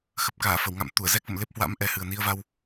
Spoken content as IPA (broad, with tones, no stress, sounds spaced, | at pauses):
x ə˨˩ p̚ k aː˧˩ f ə˧˩ w ŋ a̰˧˨ m t̪ u˧˩ ə̯ z ɛ˦˥ k̚ v ə̰˧˨ m l e˦˥ p̚ h w a̰˧˥ m ʔ ɛ˨˩ h ɨ˨˩ ə̯ n i˧ ə̯ v a˧ w